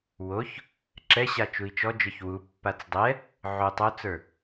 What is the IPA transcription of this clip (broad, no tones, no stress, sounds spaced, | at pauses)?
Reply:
w o ç | ǁ ɛ ɕ a t͡ʃ u i̯ t͡ʃ ɔ d͡ʒ ə˞ ç w u pː a t͡s dˤ ɛ | ʕ o tˤ o t͡s ə˞